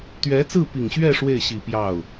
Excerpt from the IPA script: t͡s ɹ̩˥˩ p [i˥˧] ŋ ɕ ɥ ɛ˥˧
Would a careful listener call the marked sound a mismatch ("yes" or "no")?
yes